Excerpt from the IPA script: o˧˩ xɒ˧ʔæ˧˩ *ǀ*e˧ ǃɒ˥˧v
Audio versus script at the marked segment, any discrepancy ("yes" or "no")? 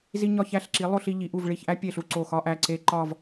no